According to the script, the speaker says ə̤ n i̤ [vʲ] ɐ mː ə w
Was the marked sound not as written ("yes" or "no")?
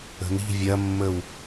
no